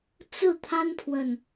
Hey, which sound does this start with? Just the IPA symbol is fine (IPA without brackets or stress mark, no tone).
t͡s